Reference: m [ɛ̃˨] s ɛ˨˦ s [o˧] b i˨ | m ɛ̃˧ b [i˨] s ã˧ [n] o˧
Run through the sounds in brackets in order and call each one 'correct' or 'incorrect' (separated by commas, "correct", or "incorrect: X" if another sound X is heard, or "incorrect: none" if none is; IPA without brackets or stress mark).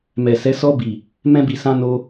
incorrect: ɛ˨, incorrect: ɔ˧, correct, correct